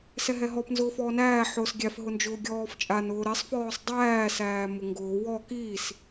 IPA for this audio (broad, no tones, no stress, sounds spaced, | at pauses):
s ɛ ɦ ɛ ɦ ɔ p n z ʊː f ɔː n æː ħ ʊː s ɡʲ æ f ɦ ʊ n d͡ʒ ʊː ɡʲ ɔː f t͡ʃʼ a n ʊː ɾ ɛ sˤ f ɔː sˤ dˤ æː s æː m ʊ ŋ ɡ ʊː w ɔ k iː s